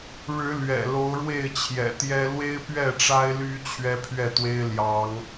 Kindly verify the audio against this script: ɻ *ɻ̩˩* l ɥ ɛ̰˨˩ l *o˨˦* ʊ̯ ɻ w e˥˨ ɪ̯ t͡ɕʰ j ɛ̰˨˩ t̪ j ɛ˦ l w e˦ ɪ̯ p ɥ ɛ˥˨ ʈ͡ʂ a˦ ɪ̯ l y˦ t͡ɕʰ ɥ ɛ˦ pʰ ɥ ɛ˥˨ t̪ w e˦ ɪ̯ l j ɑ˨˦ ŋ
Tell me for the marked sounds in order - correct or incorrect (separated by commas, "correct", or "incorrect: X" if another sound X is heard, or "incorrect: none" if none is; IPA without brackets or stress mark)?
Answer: incorrect: ɻ̩˨˦, correct